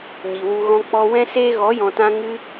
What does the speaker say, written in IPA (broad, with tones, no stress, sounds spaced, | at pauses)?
ɲ i˨ w u˧ ɣ ɔ̃˦ k͡p ɔ˧ w ɛ̃˦ s eː˦ ɣ ɔ˨˦ j ɔ̃˨ t ã˧ ŋ ɨ˧